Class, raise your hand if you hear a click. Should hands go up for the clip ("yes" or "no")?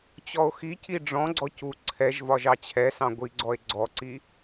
yes